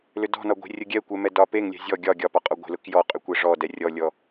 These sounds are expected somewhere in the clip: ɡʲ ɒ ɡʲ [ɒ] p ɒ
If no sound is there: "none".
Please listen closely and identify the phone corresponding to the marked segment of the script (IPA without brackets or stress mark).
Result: ɒ